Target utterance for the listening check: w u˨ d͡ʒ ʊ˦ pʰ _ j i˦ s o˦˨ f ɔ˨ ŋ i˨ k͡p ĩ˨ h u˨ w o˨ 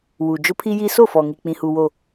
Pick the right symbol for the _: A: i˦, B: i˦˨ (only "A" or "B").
A